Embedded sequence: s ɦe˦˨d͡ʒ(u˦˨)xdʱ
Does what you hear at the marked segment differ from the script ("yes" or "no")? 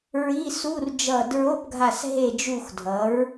no